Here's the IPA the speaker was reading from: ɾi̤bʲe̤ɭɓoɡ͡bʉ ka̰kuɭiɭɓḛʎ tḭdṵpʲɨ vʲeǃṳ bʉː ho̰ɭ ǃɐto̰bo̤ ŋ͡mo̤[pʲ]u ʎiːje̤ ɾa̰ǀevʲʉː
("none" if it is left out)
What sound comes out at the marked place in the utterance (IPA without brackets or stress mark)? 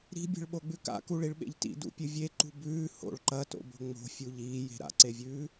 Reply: fʲ